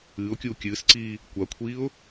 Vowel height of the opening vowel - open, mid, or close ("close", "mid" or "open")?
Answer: close